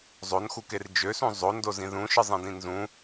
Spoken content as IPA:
zˤ o n x u k e r d͡ʒ ø s ũ zˤ o n d o z ĩ ð ũ ʃ ɯ zˤ ĩ d ĩ n z ũ

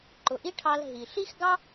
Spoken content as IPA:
ǃ ʊ˨ ʔ i˦ ʈʰ ɑ˧ l ɦ i˨ ɬ i˦ x ɡ ɑ˦

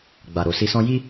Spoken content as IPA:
ɡ͡b a˨ ɾ o˨ s i˧ s ɔ̃˦ j i˦

